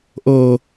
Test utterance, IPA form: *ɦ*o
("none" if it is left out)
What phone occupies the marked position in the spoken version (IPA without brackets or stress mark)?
ʔ